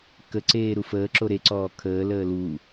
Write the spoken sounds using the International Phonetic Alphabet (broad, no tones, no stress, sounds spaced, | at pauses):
k ə ǀ eː ɾ u f əː ǁ o ɾ e ǀ ɔː kʰ əː l əː l u